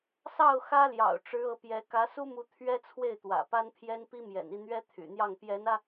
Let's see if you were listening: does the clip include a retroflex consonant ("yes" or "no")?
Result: yes